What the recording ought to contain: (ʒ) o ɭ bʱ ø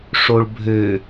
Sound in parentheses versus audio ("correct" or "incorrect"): incorrect